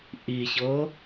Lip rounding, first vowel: unrounded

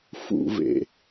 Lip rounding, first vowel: rounded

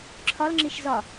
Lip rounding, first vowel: rounded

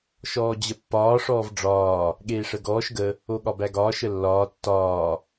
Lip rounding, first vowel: rounded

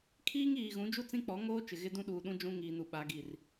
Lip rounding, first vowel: unrounded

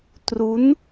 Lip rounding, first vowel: rounded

